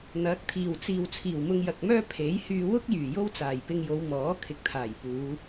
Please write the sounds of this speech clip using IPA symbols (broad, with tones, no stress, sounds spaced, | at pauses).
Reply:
n̪ ɐ˨˥ k̚ t̪ʰ iː˨˩ w t͡s iː˨ w t͡sʰ iː˨˩ w m ʊ˧ ŋ j ɐ˨ k̚ m œː˥ pʰ e˨˥ j h yː˧ w ʊ˥ k̚ j yː˨˩ j o˥ w t͡s aː˨˩ j p ɪ˧ ŋ j o˨˧ w m ɔː˨˥ kʰ ɪ˨ k̚ t̪ʰ aː˨˩ j p uː˨˧